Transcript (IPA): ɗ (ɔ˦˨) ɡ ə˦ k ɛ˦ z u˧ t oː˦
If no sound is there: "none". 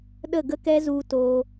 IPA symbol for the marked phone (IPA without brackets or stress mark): ə˦˨